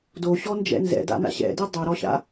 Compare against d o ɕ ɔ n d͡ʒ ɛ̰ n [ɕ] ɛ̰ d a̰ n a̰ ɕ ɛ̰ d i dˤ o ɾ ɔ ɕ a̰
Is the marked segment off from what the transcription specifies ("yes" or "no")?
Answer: yes